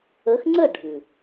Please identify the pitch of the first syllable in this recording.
rising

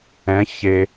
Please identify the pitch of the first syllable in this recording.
rising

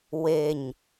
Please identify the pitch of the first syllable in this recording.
low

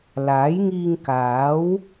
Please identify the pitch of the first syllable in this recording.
rising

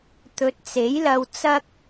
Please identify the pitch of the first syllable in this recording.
rising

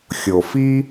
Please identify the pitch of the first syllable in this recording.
low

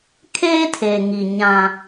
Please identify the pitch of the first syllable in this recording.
high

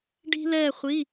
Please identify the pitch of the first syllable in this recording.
high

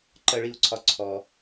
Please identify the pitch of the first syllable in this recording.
high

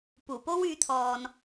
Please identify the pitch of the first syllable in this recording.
low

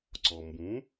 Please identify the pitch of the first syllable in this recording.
low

